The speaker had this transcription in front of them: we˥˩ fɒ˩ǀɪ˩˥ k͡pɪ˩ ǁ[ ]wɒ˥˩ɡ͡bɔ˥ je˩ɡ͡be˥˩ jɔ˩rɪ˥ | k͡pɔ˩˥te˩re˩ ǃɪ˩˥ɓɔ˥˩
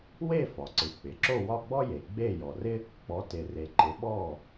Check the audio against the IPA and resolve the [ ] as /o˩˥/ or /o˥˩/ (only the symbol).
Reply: o˥˩